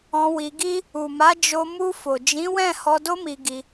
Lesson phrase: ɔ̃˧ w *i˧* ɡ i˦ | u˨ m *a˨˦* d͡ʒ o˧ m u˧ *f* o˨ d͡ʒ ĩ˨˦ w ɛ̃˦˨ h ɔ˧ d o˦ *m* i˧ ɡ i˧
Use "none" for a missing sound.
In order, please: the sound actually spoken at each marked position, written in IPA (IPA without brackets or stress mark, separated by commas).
i˧, a˨˦, f, m